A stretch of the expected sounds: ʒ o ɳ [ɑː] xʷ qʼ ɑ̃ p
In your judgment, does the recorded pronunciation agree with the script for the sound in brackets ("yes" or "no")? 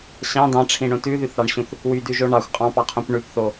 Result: no